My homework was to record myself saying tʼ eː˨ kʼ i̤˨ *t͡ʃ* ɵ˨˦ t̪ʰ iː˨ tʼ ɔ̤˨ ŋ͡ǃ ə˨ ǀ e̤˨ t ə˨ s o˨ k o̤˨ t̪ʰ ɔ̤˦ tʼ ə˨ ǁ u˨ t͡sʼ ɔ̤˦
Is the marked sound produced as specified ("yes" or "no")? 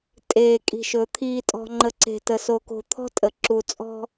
no